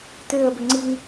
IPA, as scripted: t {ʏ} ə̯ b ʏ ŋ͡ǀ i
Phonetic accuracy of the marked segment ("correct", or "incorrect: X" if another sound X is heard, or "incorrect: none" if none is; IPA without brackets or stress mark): incorrect: ʏː